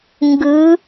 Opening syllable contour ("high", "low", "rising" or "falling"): rising